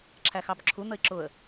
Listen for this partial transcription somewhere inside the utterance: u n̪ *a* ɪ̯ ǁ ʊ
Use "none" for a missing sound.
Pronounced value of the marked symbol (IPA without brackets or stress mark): ə